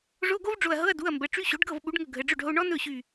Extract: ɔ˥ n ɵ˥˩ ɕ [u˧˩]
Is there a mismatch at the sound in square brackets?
yes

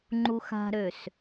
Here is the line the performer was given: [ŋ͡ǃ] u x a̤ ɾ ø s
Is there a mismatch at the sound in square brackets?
no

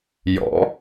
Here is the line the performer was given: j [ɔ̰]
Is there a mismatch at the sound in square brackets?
no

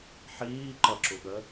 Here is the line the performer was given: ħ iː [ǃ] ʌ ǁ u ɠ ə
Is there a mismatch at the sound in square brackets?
no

